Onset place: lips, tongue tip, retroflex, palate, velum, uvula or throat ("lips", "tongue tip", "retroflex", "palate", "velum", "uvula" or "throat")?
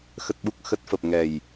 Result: velum